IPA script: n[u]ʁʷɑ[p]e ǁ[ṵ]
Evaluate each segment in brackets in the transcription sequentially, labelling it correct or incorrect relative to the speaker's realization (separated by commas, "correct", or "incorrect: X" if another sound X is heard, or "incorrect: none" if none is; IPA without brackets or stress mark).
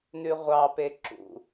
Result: incorrect: ʉ, correct, correct